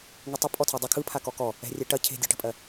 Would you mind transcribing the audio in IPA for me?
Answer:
ŋ ɯ tˤ ə pʼ ɔ tʰ ɐ dˤ ə kʰ ɯ pʰ a k ɔ k ɔ | ɛ̤ rʲ ɛ ʈ ɐ cʰ e̤ dʲ ɑ ʈ ə̤ pʼ ɜ

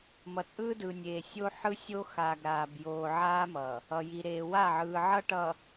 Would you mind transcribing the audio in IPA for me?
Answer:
m ʌ˨ t͡sʼ ɯː˦ d ɯː˨ nʲ eː˨ sʲ o˦ ħ ɯ˦ sʲ o˦ x aː˨ ɡ ɾ aː˨ b j oː˨ ʕ aː˦ m ʌː˨ | ʌ˨ j i˨ ɾ eː˨ w a˦˨ ʕ ɯː˨ ʕ ʌ˦ ʈ ʌ˨

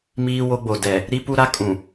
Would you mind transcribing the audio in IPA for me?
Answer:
m iː˦ w o˦ ɡ͡b o˨ d ɛ˨ | ɾ i˦ p u˦ ɾ a˦ kʼ ũ˨

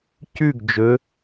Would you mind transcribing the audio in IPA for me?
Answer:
c ʉ ɡ d͡ʒ ɵ

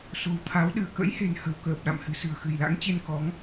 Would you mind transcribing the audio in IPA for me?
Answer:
s o̤˨˩ w t̪ʰ a˨˦ w ɗ ɨ˧˩ ə̯ k ə̰˧˥ j h e̤˨˩ n h ə̤˨˩ w k əː˨˩ p̚ ɗ a̰˧˨ m h ɨ̤˨˩ s ɨ̤˨˩ ə̯ x ɨ̤˨˩ j l a̰˧˥ ŋ t͡ɕ e˧ n k ɔ˨˦ ŋ

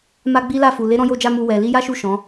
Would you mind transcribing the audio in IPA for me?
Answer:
m a˦ ɡ͡b i˦ l a˦˨ f u˨ l e˨˦ ɾ ɔ̃˧ j o˧ d͡ʒ a˧ m u˧ w ɛ˨ l i˧ j a˦ ʃ u˦˨ ʃ ɔ̃˨˦

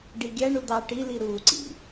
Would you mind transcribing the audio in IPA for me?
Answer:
ɖ i ɡʲ æ ɳ u d̪ ɑ ʈ i l i ɾ u ǀ ḭ

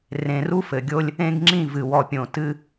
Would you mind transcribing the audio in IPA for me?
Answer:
r ẽ˨ r u˦ f ɘ˨ ɡʲ o˦ lʲ | ẽ˦ ɡ ŋ͡ǁ ĩ˦˨ v ɨ˨ w ɔ˨ pʲ õ˨ t ɨ˦

